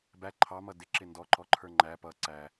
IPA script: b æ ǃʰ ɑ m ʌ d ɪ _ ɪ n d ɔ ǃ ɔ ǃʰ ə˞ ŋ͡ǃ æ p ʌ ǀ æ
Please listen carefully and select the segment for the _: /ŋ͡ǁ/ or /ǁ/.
ǁ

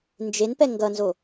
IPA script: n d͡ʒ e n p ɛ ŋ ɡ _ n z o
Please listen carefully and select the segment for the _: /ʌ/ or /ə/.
ʌ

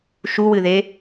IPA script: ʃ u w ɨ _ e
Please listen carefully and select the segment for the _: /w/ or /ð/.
ð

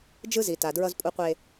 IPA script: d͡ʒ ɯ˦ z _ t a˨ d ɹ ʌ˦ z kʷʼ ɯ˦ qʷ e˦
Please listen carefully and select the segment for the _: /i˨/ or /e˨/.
i˨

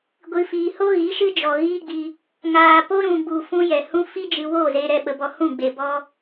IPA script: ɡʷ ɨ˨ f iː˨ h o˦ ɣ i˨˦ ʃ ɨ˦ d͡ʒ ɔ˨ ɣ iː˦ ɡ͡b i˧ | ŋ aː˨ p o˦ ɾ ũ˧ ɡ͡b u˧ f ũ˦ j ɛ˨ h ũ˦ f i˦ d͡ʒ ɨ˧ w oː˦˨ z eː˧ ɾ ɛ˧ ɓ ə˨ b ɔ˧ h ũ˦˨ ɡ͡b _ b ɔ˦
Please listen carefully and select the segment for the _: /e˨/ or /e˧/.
e˨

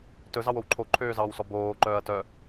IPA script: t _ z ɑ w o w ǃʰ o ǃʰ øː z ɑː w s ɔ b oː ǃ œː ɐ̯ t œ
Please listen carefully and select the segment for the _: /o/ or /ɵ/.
ɵ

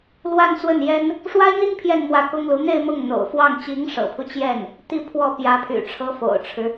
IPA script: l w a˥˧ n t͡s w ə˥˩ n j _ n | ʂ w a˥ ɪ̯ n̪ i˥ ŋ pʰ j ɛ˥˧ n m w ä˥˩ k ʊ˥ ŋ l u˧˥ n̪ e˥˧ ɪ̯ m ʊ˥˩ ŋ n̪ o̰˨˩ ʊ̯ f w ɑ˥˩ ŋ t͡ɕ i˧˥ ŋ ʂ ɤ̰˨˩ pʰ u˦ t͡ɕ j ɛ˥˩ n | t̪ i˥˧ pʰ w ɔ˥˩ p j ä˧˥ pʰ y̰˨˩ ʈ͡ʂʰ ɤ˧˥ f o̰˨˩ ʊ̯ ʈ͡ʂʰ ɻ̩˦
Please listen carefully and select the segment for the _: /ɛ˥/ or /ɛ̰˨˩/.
ɛ˥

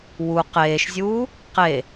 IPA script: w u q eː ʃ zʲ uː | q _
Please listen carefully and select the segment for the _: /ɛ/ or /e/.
e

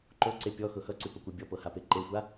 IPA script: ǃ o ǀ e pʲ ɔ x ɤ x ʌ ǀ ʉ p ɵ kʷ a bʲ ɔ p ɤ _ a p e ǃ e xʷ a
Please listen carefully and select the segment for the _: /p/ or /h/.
h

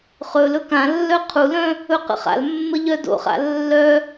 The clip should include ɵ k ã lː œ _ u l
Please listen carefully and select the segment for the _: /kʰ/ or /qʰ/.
qʰ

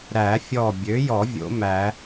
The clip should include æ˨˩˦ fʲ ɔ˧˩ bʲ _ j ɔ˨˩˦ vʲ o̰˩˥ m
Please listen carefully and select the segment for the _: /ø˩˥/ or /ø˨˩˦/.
ø˩˥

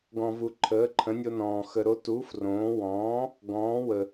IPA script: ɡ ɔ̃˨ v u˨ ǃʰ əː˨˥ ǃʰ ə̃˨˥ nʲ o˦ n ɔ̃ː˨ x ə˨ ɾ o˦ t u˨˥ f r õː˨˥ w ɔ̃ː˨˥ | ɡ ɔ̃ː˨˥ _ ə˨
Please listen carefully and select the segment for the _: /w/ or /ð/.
w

